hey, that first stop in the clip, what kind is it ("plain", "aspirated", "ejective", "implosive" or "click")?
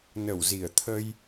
aspirated